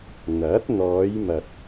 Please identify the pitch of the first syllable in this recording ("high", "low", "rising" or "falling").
rising